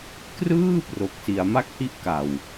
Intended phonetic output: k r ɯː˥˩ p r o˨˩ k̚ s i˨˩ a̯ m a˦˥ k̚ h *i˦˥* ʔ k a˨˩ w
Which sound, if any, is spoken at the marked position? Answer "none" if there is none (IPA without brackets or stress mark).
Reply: i˦˥